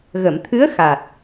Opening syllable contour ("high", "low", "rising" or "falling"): low